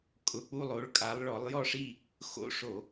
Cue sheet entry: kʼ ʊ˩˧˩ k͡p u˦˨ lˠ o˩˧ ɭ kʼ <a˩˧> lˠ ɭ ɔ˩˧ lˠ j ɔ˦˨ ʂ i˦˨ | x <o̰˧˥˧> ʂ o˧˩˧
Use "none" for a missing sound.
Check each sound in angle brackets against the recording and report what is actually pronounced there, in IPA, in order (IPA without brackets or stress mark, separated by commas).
a˩˧, o̰˧˥˧